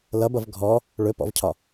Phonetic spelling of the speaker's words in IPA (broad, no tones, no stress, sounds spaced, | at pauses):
l ʌ b ʌ v ɡʱ ɔ | ɭ ɵ p ɔ̰ v cʰ ɒ